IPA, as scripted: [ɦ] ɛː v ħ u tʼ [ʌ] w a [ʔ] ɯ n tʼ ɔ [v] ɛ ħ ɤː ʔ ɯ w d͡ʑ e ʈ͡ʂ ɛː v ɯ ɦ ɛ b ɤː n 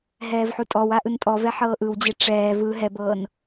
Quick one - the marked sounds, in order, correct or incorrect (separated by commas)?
correct, incorrect, correct, correct